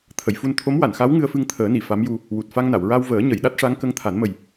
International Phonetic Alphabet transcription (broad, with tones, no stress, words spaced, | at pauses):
t̪ʰə˨˩˨jfu˧n t̪ʰo˧˥mwa˨˩˨nxa˧˥w ŋɨ˧ə̯fɨ˧ŋt̪ʰəː˨˩˦ni˨˩˨ fa˧˥mju˧ | wu˨˩t̚fa˧ŋna˨˩˨w ɹa˧wvəː˨˩˦ ɲə˨˩˨jɗa˦˥t̚ʂa˧˥ŋkə˧ŋ t̪ʰa˨˩˦nmə˨˩j